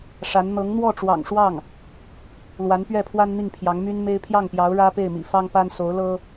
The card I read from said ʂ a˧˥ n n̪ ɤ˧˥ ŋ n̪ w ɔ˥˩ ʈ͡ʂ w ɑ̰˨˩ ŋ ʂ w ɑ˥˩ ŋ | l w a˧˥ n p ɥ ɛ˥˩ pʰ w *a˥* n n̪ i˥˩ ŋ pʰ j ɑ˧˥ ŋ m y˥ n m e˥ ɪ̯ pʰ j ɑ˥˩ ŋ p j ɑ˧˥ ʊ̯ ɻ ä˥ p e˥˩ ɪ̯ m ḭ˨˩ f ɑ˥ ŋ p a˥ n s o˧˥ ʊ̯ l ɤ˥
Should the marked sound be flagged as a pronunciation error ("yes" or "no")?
no